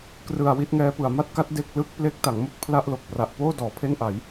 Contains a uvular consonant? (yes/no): no